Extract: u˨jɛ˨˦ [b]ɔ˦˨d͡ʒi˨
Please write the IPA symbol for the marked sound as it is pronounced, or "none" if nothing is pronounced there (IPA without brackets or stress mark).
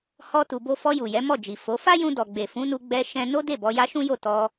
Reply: m